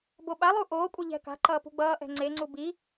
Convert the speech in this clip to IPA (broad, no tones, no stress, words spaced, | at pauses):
boɓalˠu ʔoːkʷʼʌ ʎɛ̤ka̤ǃʌː pṳɡ͡bʌːʔɛ̤ ŋ͡ǀeŋ͡ǀu bi